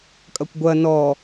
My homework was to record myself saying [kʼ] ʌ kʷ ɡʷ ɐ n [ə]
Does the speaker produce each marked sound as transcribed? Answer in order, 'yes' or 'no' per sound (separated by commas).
yes, no